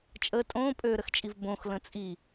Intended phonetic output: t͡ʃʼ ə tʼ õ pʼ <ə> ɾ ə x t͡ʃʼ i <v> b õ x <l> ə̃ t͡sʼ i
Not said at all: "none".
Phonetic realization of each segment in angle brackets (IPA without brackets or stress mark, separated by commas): ø, v, l